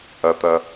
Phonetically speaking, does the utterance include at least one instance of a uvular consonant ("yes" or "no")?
no